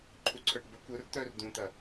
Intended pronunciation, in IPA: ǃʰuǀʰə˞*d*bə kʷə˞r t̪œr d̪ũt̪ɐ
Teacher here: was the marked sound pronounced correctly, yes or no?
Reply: no